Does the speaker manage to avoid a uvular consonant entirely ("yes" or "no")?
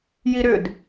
yes